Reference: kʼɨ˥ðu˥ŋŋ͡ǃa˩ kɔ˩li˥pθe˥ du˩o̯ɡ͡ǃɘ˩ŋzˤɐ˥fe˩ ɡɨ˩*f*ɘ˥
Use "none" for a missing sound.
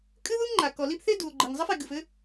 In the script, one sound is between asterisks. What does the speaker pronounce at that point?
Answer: f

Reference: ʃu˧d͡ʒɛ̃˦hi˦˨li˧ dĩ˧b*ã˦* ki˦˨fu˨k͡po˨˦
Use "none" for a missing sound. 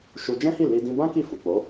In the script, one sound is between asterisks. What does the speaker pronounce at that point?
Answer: ã˦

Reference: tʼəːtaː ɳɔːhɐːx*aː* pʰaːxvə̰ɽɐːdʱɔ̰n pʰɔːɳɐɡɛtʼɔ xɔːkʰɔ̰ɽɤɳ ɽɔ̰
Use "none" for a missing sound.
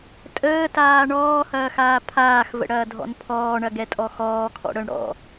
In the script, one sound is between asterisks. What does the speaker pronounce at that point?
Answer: aː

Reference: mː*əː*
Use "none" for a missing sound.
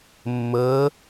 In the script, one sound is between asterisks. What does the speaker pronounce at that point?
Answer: əː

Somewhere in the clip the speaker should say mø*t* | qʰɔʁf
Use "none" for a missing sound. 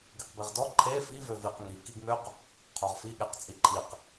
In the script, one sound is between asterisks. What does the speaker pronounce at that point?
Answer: q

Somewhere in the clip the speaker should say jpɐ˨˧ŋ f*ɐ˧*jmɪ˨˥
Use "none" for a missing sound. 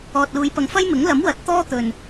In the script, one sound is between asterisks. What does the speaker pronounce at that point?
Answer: ɐ˥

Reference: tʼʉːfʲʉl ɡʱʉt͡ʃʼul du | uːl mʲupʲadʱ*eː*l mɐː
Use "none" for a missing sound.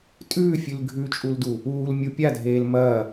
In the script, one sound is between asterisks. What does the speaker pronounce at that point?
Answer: eː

